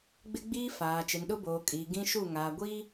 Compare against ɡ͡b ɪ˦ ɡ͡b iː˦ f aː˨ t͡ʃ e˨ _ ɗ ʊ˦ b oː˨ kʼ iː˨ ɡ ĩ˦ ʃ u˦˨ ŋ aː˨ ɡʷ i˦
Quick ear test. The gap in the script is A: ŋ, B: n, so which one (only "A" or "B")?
B